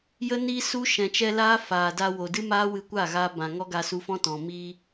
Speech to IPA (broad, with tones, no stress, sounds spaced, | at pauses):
j ə˦ n iː˧ s u˦ ʃ ɛ̃˨ t͡ʃ ɛ˧ l aː˦ f aː˨ d a˧ w o˨ d ɨ˦ m aː˦ w ɨ˧ kʷ a˦˨ ɣ aː˧ b ã˨ ŋ ɔ˦ ɡ a˧ s u˧ f ɔ̃˦ t ɔ̃˨ m iː˧